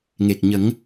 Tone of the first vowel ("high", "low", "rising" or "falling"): low